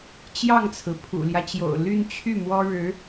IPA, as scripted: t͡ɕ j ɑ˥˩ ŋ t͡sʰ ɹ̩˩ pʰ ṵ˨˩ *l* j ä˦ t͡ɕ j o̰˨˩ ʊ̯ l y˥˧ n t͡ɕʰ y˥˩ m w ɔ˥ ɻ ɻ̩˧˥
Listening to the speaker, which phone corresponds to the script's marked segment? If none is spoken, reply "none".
l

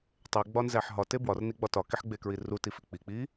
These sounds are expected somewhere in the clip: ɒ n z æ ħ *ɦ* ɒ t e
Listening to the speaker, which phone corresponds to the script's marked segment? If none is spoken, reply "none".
ɦ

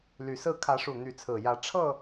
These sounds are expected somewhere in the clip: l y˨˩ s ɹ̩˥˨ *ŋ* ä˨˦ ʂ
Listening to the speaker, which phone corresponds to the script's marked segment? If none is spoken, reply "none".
kʰ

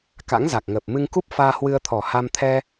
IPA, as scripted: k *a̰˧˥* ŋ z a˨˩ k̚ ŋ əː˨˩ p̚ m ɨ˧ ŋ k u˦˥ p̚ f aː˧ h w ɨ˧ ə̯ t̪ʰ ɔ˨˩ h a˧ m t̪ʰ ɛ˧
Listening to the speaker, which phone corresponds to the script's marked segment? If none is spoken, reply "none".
a̰˧˥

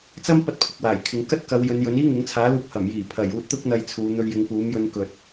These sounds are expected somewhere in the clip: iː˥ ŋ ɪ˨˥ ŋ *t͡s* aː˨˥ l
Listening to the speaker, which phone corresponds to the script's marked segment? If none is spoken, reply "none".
t͡sʰ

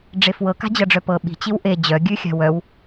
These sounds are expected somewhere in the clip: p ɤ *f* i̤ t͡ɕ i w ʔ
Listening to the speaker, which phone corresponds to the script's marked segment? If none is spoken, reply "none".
ɓ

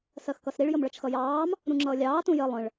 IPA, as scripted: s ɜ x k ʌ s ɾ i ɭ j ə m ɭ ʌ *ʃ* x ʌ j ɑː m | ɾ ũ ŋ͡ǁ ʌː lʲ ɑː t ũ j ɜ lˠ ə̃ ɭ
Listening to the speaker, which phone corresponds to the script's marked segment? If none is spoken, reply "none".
t͡ʃ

